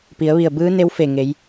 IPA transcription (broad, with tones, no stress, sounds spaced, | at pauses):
p i˩˧ ə̯ ʋ i˧˩ ə̯ b ɯː˧˥ n e˧˥ w f e˧˩ ŋ e˩˧ j